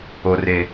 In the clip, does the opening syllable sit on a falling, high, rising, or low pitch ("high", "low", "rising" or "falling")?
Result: low